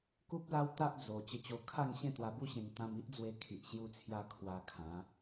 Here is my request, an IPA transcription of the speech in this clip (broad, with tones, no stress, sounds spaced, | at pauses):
k u˦ p̚ l a˦ w t̪ a˦ ʔ d͡z o˨˩ t͡ɕ ə˧ t͡ɕ o˧ kʰ a˥˧ ŋ ɕ ẽ˥˧ t̪ w a˧ b u˦ ɕ ẽ˧ ŋ t̪ ã˧ m i˦ ʔ d͡z w e˧ kʰ i˨ ʔ ɕ j u˧ t͡sʰ j a˧ kʰ w a˧ kʰ ã˨˦